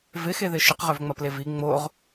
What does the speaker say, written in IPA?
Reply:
v ɪ x e ð ɪ ʃ ɪ q ʁ ø v ŋ͡m ɐ p l e v i ŋ͡m o ʁ

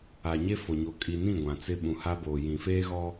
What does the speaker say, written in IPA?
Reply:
a˨ ɲ e˦ f o˨ ɲ o˨ kʼ i˨ n ĩ˦˨ ɡʷ ã˨ t͡s ɪ˦ ɓ ũ˨ h a˦ b oː˨ j ĩ˨ f eː˦ ɣ ɔ˦

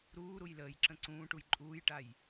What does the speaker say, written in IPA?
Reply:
ɾ uː ɾ u j l əː j ǁ ə̃ ǀ ũː ʈ u j ǃʼ uː j ʈ a j

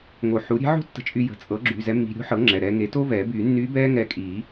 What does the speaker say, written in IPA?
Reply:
ŋ o˨˩˦ ħ u˩˥ ɾʲ e̤˧˥ ʕ o̤˥ tː ə̤˧ t͡ʃʼ y˧ j ə̤˩˧˩ t͡sʼ ɤ˩˥ ɡ͡ǁ y˩˧˩ z ɛ˧˥ mː i̤˧ ɾʲ o̤˧˥ ħ ɤ˩˥ ŋ͡ǁ ɛ˩˧˩ ɾ ɛː˧ ŋ e˩˥ t o˥ v ɛː˨˩˦ b yː˨˩˦ nː yː˧˥ b ɛː˥ ŋ ɛ˧ kʼ i˨˩˦

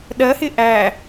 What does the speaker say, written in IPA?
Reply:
ɗ ɜ h ɪ ʔ æ

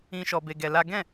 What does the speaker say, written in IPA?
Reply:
ĩ˧ ʃ ɔ˧ b e˧ ɡ ɛ˧ l a˦ ɡ ɛ̃˦˨

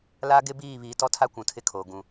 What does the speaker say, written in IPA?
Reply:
l a˦ ɡ ɪ˦ b iː˦˨ β iː˨ t ɔ˦ tʰ a˦ kʷ ũ˨ tʰ ɪ˦ kʰ oː˨ ɡ ũ˨

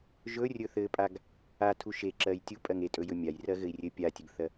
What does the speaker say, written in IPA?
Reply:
ʒ ɵ rʲ ɵ θ ɘ pʼ a ɡ | a tʰ u ʃ e ǁ ɜ j tʲ u pʼ ɜ ŋ e tʼ ɵ j ɵ mʲ a j r ɜ ɣ ɘ i̯ rʲ ɘ pʲ a tʲ ɘ ɡ θ ɜ

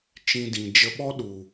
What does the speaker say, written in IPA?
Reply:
t͡ʃ ĩ˧ d ĩ˨ d͡ʒ ə˧ ɓ ɔ˦ ɗ u˨

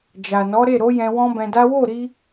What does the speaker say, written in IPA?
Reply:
d͡ʒ a˨ n ɔ˨˦ ɾ e˦˨ ɾ o˨˦ j ɛ̃˧ w ɔ̃˦ b ɛ̃˧ d a˦ w o˦˨ ɾ i˧

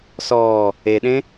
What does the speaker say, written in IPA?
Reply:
s ɔː | e ɗ ẽ

